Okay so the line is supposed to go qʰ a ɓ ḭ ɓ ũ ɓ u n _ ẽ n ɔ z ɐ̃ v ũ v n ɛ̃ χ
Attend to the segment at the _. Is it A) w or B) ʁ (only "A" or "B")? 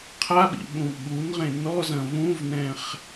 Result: B